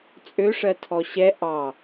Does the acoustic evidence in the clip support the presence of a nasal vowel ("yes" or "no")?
no